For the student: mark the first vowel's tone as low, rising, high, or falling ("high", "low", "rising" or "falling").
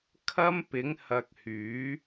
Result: high